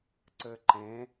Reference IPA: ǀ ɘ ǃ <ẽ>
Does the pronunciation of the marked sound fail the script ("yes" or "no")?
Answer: no